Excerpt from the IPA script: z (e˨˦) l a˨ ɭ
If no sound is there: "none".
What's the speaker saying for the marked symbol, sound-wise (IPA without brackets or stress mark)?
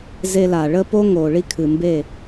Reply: e˧